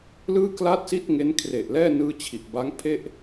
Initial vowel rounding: unrounded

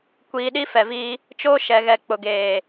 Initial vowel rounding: unrounded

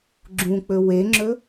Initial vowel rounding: rounded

